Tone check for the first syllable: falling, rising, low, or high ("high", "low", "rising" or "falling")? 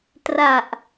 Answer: low